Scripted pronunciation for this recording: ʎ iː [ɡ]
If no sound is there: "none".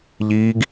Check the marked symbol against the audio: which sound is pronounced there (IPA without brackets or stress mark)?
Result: ɡ